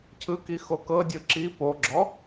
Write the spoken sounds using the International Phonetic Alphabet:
cʰ ɯ k i x o k ɤ dʲ ɯ ǁ i p o ɡ͡ǁ ɔ

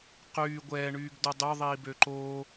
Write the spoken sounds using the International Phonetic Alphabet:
q yː ɡʷ ɛː ɳ yː ɡ d o dˤ ø ðˤ iː b ø ǃ oː

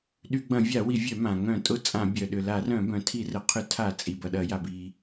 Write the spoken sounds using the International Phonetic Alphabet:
ɗ y˧˩˧ ɡ͡b ɐ̃˧˩˧ vʲ a˧˩˧ w i˧˩˧ vʲ œ˧˩˧ m ã˩ ŋ œ̃˧˩˧ tʼ ʊ˧˩˧ t͡sʼ ã˧˩˧ bʲ œ˩ ɗ ʏ˩ l a˧˩˧ r œ̃˧˩˧ b œ̃˩ tʰ i˧˩˧ r ə˩ qʰ ʏ˧˩˧ tʰ a˧˩˧ t͡sʼ i˩ b ɐ˩ ɗ ɐ˧˩˧ j a˩ b i˩

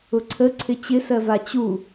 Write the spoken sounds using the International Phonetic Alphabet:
ʊ ǀʰ ə ǀʰ ɪ t͡ɕ ɪ s ɜ v a t͡ɕ u

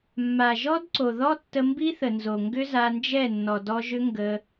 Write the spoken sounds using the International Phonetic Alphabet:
mː a˨ ʒ ɔ˦ d ǀ o˨ ð ɔ˦ tː ə˧ m b i˦ θ ə˨ n z o˨ ŋ ɡ ʏ˦ z a˧ n d͡ʒ ɛ˦˨ nː ɔ˨ d ɔ˧ ʒ ʏ˦ ŋ ɡ ə˧

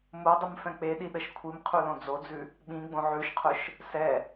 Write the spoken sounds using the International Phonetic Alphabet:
m o dˤ ʊ m f ɛ̃ k͡p e ɗ i ɗ ə ʃ kʷʰ i m qʰ u l õ d͡z o d͡z ʉ | ɓ ĩ ɡ͡b õ ʕ ʉ ʃ qʰ ʊ ʃ | s ɛ

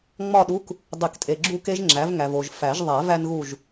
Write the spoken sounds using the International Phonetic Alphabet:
ŋ͡m ɒ˥˨ ɗ u˧˥˧ k | dˤ i˨˩˦ k tʼ e˨ ɡ͡ǁ u˥˨ k e˥ ʒ ŋ͡ǁ æ˩˥ v ŋ æ˨ v o˨ ʒ f æ˨˩˦ ʒ ðˤ æ˨˩˦ v æ˥ n ɣ u˥˨ ʒ

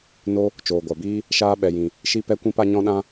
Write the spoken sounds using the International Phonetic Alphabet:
n o˧ | t͡ʃ oː˨ ɡʷ a˨ b iː˦ | ʃ aː˧ ɓ ɛ˨ j ĩ˨ | ʃ i˦ p ɛ˦ kʷ ĩ˦ p a˦ ɲ ɔ̃˦ ɗ ã˦

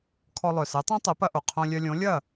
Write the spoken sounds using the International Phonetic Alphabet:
kʰ ɔ˧ lˠ œ˩ s ɛ˩˥ tˤ œ̃˥ tˤ ɛ˩˥ p ɐ˧ ʔ o˩ qʰ õ˧ lʲ œ˧ lʲ õ˩˥ lʲ ɐ˥˩

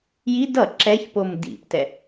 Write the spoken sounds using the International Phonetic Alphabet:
j i d ʌ ǁ ɛ ç p o m d ḭ p t ɛ

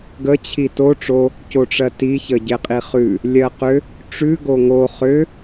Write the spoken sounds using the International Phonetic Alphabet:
ɡ ə t͡ɕʰ i t o ʈ͡ʂ o | c o ʈ͡ʂ ɜ t i ç ə ɟ e qʼ i χ ʉ | lʲ ɜ q ʏ | ʈ͡ʂ ʉ ɡ o ŋ o χ ʏ

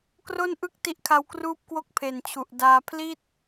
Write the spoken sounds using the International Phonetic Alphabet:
k r o˥˩ n ʔ ɯ˥˩ k̚ t i˦˥ ʔ kʰ a˧ w k r uː˥˩ p̚ k w o˥˩ k̚ pʰ e˨˩ n t͡ɕʰ u˨˩ ʔ d aː˧ pʰ l i˥˩ t̚

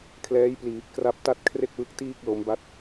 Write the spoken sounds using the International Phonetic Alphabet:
kʰ l ɛː˦˥ j p l iː˨˩ p̚ k r a˦˥ p̚ t a˥˩ t̚ kʰ r e˥˩ k̚ w ɯ˦˥ k̚ t iː˥˩ k̚ l o˦˥ m b a˥˩ t̚

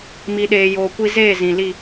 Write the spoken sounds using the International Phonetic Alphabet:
m i˨ ɗ eː˨ j oː˨ kʷ i˧ z eː˦˨ z ĩ˨ l i˦˨

